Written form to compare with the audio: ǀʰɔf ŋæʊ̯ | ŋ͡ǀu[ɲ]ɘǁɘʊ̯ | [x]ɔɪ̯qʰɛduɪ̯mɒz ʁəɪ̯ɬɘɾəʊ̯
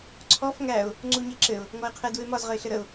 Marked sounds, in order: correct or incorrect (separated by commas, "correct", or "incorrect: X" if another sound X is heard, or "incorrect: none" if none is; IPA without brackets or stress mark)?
correct, incorrect: ŋ